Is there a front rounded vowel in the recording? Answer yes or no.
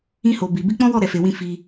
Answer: no